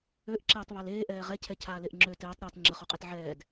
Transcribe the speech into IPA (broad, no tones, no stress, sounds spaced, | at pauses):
ø ʔ ǁ eː tˤ β a l eː ʔ ɛː ʁ ɛ cʰ ɛ cʰ aː l e ʔ ŋ͡ǁ ø t ɛː tˤ ɾ aː t ŋ͡ǁ ə χ o qʼ e t ʕ ɛː d